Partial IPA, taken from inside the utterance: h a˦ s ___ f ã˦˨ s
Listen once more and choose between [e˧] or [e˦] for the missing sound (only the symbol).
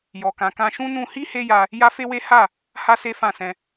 e˦